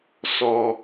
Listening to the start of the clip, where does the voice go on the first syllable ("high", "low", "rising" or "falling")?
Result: low